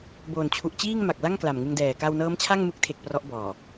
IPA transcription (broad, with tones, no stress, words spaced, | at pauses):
boː˨˩n t͡ɕʰu˨˩ʔt͡ɕiː˥˩ŋma˨˩k̚la˥˩ŋ kla˨˩mŋɯ˧ŋdɛː˨˩ ka˧wnɤː˦˥mt͡ɕʰa˥˩ŋ mɯ˦˥k̚tʰe˨˩k̚ prɔ˦˥ʔbɔː˨˩